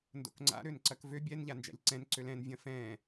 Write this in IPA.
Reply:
n d o̰ k ŋ͡ǀ a̰ ɾ ø n ǀ ɐ k v ø bʲ ɛ n ʎ a n d͡ʒ a̰ ʎ ǀ ɛ̃ n ǀ ø l ɛ̃ n vʲ ɐ̃ f ɛ̃

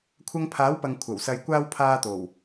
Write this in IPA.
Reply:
kʷʰ ɐ˧ ŋ pʰ aː˨˥ w p ɐ˨ ŋ kʷʰ ɐ˨˩ w s ɐ˨ j kʷ aː˧ w pʰ aː˧ t̪ o˨˩ w

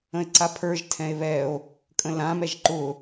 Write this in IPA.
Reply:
ə̃ e̯ ǀ a pʰ ə˞ ʒ tʰ ɛ̃ e̯ β ɛ o̯ | kʼ ə̃ l ã m ɛ ʒ ǃ ʊ

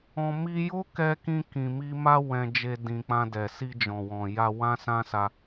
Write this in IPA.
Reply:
ɔ̃˧ m i˧ j o˦ k ɛ˧ k ĩ˧ k ĩ˨ m i˧ m a˦ w ɛ̃˧ d͡ʒ e˧ d ĩ˨ k͡p ã˧ d ɛ˨ s i˧ d͡ʒ ɔ̃˨ w ɔ̃˨ j a˧ w ã˦ s ã˦ s a˧

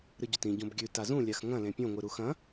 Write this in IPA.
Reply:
ɾ ɨ ɟ ɵ t ĩ ɟ õ b ɡʲ ʉ t a z ũ lʲ a x ŋ ɐ̃ l ẽ pʲ õ ŋʷ ɨ ɾ u x ɐ̃

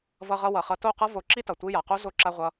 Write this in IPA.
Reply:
v ʌ˧ ʁ ʌ˧ w ʌ˨ χ ʌ˧ t o˦˨ q ʌ˦ v o˧ ǁ i˦ t ʌ˨ tʷ i˧ j a˨ q o˦ z o˦ ǁ a˦ ʁʷ ʌ˦

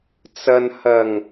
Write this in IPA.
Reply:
t͡s ɐ˨ n h ɐ˨˩ ŋ

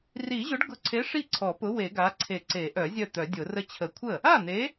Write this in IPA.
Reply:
r i˨˩˦ ʑ ʊ˨˥ ɖ ɡ ʊ˨˥ ǀʰ e˨˥ ʂ i˥˩ ǀʰ ɔ˨˩˦ p ʊ˨˥ w e˨˩˦ ɡ a˨˥ ǀʰ e˨˩˦ ǀ e˨˩˦ ʔ œ˨˩˦ zʲ œ˥˩ t̪ œ˨˩˦ dʲ ʊ˨˩˦ r ə˥˩ t͡ɕʰ ə˨˩˦ kʷʰ ə˥˩ | a˥˩ n̪ e˨˥

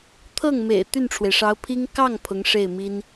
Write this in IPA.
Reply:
t̪ʰ ɤ˥˩ ŋ m ḛ˨˩ ɪ̯ t̪ y˥˩ n ʈ͡ʂʰ w e˩ ɪ̯ ʂ ɑ˧˥ ʊ̯ pʰ i˥ ŋ k ɑ˥˩ ŋ pʰ ʊ˧˥ ŋ ʂ e˥˩ ɪ̯ m i˥ n

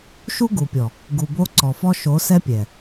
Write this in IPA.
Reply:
ʃ u˦ ɡ u˨ pʲ ɔ˨ | ɡ u˨ b o˦ ǀ ɔ˨ f ɔ˦ ʃ o˨˦ s ɛ˦ pʲ ɛ˨

